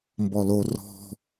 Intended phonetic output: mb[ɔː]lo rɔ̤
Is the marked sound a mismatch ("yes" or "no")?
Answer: yes